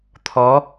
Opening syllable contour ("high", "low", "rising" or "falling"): rising